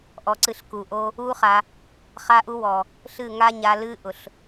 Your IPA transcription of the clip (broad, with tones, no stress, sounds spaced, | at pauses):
ʔ ɔ˧ ǀ ɨ˧ ɬ k u˨ ʔ o˦ | u˦ χ a˧ | χ a˦ ʔ u˦ w ɔ˨ | ɬ ɨ˦˨ ŋ a˦ ɲ a˧ l ɨ˦ ʔ ʊ˨ ɬ